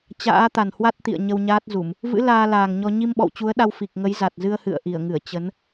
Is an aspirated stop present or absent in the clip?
absent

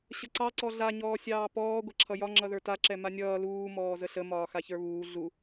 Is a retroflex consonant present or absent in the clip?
absent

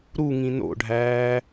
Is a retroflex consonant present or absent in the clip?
present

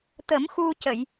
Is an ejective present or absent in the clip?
absent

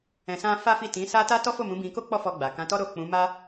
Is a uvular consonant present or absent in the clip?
absent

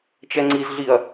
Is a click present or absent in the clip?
present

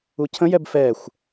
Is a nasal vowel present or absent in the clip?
present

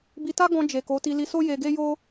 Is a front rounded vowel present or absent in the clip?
absent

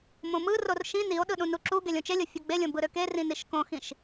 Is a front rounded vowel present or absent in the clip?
present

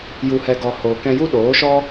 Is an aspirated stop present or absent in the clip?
absent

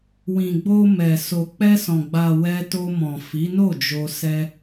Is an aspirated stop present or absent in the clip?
absent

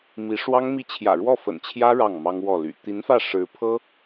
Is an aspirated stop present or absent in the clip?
present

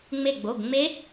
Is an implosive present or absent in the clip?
absent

